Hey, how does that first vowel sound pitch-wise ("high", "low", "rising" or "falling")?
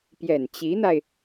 low